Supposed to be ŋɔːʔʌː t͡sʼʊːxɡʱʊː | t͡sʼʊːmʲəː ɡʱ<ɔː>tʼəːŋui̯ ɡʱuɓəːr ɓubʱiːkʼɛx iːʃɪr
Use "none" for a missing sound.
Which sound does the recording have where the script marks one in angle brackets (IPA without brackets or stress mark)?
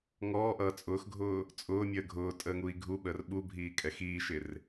ʊː